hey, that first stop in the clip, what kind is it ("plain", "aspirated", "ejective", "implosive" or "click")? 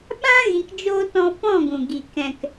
implosive